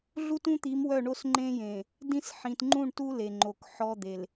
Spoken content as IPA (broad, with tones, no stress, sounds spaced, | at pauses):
ɮ u˦ t ũ˦ t̪ i˨˦ m w œ˦˨ ɳ o˦ s ŋ͡ǃ ẽ˦ j ẽ˨ | d ĩ˦ s ħ ĩ˨ t ŋ͡ǃ ũ˦˨ ɳ t u˦ l e˨ ŋ͡ǃ o˨ k ħ ɔ˦ d̪ e˨ l